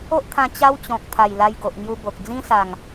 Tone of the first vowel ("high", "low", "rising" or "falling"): high